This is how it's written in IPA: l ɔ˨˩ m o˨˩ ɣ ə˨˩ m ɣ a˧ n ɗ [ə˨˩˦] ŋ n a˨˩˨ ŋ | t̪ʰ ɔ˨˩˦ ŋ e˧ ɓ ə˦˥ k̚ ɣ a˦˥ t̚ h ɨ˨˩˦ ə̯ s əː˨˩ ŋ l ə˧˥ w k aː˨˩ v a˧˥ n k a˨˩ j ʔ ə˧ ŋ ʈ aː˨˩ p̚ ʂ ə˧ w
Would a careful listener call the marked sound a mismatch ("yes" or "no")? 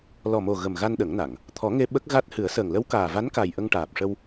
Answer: no